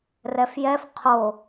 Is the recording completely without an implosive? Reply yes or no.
yes